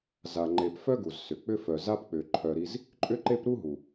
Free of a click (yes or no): no